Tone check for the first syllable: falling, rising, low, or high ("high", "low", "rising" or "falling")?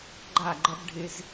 falling